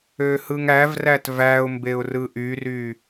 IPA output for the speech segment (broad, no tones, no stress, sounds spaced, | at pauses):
ø h ɯ ŋ æ v r æ t v æ ʊ̯ m b e ʊ̯ r ɯ ʔ y r y